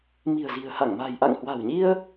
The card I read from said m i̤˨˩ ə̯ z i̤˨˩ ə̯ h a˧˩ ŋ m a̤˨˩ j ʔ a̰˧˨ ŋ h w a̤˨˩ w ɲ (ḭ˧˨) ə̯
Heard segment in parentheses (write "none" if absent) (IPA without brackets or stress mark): i˧